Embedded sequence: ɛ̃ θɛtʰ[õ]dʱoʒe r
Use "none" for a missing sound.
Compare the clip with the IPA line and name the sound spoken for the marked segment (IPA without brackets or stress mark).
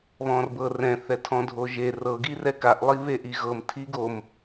ɔ̃